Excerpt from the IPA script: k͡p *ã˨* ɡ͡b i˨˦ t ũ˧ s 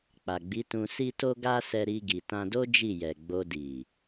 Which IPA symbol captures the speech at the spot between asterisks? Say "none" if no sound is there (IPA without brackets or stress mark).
a˨